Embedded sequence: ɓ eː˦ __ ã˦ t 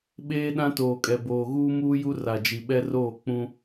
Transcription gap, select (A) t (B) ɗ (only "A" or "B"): B